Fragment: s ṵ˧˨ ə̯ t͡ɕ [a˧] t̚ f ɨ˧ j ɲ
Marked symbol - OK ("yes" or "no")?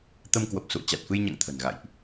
no